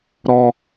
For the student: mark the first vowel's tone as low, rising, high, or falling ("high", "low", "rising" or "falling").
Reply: low